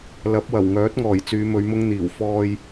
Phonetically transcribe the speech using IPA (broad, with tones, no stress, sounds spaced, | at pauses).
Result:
l ɐ˨˥ p̚ w ɐ˨˩ w ŋ œː˨˥ t̚ ŋ ɔː˨˩ j t͡s yː˨˧ m ɵ˨˧ ɥ m ʊ˥ ŋ n̪ iː˨˩ w f ɔː˧ j